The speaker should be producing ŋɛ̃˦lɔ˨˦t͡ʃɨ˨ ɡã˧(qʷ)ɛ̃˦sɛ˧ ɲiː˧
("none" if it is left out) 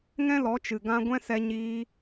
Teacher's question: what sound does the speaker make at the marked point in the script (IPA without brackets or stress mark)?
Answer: ɡʷ